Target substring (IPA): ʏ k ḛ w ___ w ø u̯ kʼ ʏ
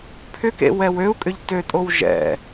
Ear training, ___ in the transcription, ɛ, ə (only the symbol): ɛ